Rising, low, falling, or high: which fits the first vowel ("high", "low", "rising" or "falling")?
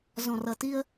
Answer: low